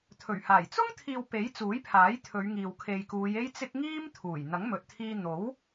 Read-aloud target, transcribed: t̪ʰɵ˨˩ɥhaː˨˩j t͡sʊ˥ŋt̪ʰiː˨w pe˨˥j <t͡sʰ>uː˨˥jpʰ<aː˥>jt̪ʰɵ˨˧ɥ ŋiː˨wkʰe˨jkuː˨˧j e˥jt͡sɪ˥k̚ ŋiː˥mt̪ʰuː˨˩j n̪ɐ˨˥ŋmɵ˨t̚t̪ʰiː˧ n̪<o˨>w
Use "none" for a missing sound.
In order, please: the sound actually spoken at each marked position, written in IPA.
t͡s, aː˨˥, o˨˥

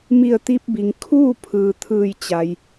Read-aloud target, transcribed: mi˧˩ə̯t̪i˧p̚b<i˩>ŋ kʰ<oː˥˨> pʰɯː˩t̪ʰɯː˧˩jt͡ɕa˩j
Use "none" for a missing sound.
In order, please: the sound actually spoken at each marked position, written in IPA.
i˩, uː˥˨

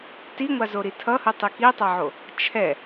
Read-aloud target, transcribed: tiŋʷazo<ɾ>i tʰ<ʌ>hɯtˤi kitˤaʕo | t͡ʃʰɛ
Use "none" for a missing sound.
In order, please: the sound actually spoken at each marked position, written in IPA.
ɾ, ʌ

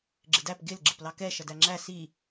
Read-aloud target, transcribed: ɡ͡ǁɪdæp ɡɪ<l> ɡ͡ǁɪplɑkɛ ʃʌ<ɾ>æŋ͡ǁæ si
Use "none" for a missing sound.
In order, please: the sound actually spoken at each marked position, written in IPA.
l, d

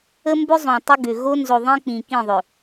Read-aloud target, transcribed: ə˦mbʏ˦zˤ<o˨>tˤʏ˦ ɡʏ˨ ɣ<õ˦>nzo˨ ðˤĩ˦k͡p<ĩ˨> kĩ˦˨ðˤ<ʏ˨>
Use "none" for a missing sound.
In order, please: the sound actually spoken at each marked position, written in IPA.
õ˨, o˦, ĩ˨, ʏ˨

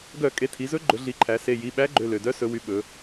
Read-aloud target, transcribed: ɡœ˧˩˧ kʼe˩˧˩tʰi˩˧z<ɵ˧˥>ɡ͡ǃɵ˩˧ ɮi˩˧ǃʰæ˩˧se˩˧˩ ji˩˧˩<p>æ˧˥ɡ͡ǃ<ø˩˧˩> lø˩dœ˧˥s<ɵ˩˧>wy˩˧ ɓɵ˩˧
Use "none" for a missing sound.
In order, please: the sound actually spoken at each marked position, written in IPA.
ɵ˧˥, ɓ, ø˩˧˩, ɵ˩˧

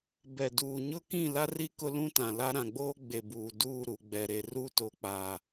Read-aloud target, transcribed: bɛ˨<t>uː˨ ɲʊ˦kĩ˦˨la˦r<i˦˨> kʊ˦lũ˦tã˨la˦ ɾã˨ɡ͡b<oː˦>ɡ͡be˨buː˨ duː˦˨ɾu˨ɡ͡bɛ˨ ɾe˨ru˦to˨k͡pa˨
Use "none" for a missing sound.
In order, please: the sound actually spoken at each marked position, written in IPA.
d, i˦, oː˦

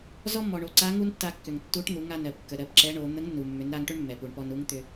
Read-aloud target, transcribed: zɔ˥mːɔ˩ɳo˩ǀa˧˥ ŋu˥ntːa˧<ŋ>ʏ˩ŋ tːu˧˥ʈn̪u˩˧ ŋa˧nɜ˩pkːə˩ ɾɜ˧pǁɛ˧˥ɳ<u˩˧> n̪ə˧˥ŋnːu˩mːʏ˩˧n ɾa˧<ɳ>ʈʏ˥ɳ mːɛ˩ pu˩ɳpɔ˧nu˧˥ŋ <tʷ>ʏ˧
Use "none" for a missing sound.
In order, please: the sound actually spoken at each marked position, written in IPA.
kː, o˩˧, ŋ, t̪

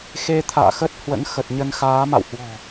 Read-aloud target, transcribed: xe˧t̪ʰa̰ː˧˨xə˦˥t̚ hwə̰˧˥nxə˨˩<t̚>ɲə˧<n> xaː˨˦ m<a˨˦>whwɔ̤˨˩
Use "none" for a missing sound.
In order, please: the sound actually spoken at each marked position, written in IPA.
t̚, n, a̰˧˨

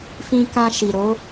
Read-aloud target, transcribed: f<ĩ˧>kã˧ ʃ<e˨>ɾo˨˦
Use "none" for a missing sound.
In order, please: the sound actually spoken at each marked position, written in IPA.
ĩ˧, i˨

